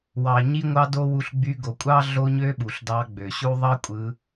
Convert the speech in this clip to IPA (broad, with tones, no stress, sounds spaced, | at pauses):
w ɑ˨ ɲ i˦ ŋʷ ɑ˦ d o˦ w u˧ ɬ ɡ͡b y˧ ɡ o˨ kʷʼ ɑ˦ ɮ o˦ ɲ ø˦ ɓ u˨ ɬ d ɑ˧ ɡ͡b ø˨ ɕ u˦ ðˤ ɑ˦ kʷʼ ɯ˧